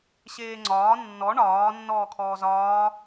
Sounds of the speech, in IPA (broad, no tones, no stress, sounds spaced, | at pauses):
ɕ eː ŋ͡ǀ ɒː nː ɔ ɳ ɒː nː ɔː kʰ ɔː z ɒː